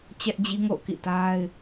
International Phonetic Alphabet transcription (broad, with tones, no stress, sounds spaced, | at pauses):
t͡ɕ ɛ˦ ʔ d͡ʑ i˦ ŋ o̰˦˨ ʊ̯ k ḭ˦˨ t a˦ ɪ̯